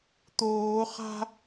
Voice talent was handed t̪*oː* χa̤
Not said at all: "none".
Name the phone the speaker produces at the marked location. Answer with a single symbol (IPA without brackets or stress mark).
oː